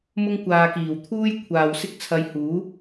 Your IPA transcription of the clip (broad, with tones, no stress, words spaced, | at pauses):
mʊ˥ŋkʷaː˧ kiː˨˩wt̪ʰuː˥j kʷʰaː˨wsɪ˥k̚t͡sʰɐ˧jhuː˨˥